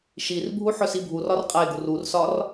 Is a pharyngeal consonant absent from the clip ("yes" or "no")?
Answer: no